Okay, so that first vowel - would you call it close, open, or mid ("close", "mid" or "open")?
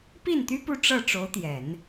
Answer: close